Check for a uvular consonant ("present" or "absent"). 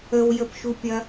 absent